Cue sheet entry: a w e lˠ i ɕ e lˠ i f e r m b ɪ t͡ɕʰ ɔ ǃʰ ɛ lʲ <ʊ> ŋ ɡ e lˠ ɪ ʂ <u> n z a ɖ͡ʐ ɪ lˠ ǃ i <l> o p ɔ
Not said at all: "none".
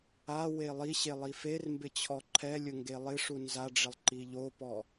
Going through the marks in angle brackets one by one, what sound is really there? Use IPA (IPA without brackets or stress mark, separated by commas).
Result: ʊ, u, ʎ